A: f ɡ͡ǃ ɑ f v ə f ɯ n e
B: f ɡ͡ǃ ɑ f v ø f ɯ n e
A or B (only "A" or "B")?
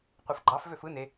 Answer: B